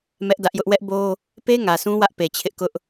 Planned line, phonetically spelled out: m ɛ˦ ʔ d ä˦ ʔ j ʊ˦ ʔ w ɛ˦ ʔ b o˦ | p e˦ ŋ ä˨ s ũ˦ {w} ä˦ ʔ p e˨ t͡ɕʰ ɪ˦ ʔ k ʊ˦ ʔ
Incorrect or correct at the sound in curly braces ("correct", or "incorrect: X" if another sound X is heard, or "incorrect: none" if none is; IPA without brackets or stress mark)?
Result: correct